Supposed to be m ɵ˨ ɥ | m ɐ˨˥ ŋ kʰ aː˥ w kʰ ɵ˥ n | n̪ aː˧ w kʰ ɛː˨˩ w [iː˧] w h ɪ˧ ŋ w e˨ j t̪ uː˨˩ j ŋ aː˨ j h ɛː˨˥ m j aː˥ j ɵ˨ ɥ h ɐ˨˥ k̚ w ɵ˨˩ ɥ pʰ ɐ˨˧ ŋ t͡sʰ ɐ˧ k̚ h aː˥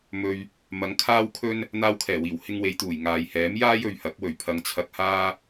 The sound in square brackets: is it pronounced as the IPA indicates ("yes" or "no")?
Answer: no